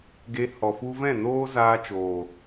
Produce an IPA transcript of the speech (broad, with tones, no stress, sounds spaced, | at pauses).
ɡ e˧ h ɔ˨ f u˧ v ɛ̃˦˨ n oː˦ z aː˧ t͡ʃ oː˨